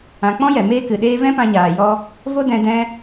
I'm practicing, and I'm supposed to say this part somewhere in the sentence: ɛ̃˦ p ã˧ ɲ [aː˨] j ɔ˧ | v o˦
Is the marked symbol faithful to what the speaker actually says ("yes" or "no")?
yes